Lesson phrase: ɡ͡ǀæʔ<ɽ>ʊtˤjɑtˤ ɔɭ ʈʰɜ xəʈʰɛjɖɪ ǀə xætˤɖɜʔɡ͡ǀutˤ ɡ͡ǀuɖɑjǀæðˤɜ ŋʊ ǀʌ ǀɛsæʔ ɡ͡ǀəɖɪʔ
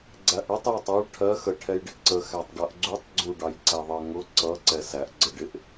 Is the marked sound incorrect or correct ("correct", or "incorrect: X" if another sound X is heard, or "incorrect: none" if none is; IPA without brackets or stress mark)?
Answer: correct